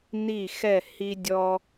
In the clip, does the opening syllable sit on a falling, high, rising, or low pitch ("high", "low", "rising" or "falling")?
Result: falling